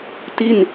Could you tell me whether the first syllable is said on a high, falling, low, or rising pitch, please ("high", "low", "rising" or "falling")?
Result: falling